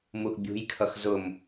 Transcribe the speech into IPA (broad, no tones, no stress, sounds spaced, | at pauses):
m u ʔ bʲ ṳ j kʰ ʌ x z ʊ m